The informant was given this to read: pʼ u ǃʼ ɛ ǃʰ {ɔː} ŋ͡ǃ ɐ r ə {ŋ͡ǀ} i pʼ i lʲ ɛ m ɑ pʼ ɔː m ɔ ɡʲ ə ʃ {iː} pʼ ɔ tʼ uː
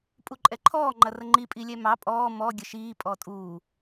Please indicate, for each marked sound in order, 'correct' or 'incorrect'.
correct, incorrect: ŋ͡ǃ, correct

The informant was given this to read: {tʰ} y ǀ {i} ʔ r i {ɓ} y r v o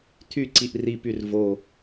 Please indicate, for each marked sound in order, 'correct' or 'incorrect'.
correct, correct, incorrect: p

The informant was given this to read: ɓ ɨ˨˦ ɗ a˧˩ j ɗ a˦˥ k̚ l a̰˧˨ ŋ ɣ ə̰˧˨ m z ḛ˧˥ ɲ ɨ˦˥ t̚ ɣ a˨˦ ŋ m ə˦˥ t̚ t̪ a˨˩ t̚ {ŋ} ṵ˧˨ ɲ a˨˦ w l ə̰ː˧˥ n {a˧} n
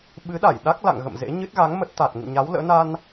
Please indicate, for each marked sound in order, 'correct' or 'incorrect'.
correct, correct

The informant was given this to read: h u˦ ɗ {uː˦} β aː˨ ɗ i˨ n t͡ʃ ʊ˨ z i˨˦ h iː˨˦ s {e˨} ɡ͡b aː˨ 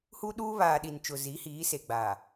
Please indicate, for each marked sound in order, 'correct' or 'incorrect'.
correct, correct

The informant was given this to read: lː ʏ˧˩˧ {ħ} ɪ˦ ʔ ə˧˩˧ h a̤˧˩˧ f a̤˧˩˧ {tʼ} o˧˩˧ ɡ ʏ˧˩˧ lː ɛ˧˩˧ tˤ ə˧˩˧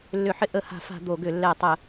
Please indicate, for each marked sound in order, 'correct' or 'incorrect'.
correct, incorrect: d̪

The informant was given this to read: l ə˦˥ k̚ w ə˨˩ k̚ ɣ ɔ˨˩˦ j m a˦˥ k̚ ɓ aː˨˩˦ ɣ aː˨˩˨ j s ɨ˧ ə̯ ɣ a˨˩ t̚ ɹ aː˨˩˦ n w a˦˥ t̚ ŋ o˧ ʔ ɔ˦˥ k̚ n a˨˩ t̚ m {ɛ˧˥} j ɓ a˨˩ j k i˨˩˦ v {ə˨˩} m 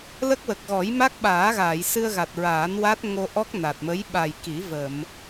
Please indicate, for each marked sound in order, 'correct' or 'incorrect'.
incorrect: ə˧˥, incorrect: ə˨˩˨

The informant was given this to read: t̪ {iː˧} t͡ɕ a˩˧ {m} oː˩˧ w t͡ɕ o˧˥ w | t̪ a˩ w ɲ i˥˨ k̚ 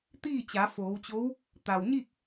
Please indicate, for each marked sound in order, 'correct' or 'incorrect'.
incorrect: iː˥˨, incorrect: f

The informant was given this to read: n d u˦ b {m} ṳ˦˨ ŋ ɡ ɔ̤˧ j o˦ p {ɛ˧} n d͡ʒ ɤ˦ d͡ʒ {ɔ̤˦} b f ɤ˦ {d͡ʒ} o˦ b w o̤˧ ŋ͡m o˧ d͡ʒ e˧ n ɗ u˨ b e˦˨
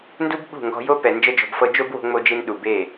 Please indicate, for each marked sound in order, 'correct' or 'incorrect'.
incorrect: ɓ, incorrect: ɛ˨, incorrect: ɔ̤˧, correct

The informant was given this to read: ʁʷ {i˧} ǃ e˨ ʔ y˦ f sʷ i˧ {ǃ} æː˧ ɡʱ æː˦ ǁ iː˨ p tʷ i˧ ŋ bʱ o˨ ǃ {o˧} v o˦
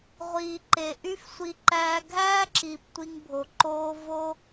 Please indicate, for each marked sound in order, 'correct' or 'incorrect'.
incorrect: i˨, correct, incorrect: oː˧

